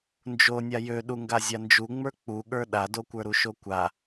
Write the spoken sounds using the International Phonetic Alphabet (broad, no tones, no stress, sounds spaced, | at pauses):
n d͡ʒ o nʲ a j ø ɗ u ŋ ɡ a zʲ a n d͡ʒ u ŋ͡m ə˞ k͡p u ɠ ə˞ ɗ a d o kʷ ə˞ ɾ u ʃ o kʷ a